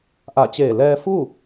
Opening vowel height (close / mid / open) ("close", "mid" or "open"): open